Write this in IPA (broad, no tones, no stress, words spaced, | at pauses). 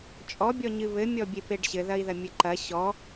t͡ʃʼɔbʲɔɲɨ βɘmʲɔbʲepeɖ ɕɘðɐi̯ðɐ mʲɘǃɐ ɕɔ